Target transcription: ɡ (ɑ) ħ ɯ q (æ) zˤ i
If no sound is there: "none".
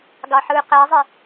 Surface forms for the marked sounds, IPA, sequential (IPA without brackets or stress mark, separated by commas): ɑ, æ